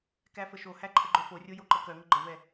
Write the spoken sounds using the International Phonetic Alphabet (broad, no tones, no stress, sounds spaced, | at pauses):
k æ f ə ʃ o h æ ǃʰ ə ɡ͡ǃ œ f o rʲ o j o ǃ ə k œ ŋ ə ɡ͡ǃ ə v ɛ